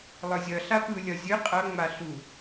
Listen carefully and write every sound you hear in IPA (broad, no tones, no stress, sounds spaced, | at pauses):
lˠ ɯ zʲ ʌ ɬ a p ɯ lʲ ʌ zʲ ɯ qʼ ʌ ŋ͡m a ɬ u